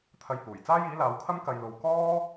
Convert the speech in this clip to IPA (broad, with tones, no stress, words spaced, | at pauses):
t̪ʰɐ˧jhuː˨˩j t͡saː˥jiː˨˥laː˨˧wkʰɐ˥m kɐ˨jlo˨w kɔː˥